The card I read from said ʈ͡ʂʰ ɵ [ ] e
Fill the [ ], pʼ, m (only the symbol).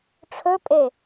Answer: pʼ